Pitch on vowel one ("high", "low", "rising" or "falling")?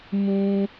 high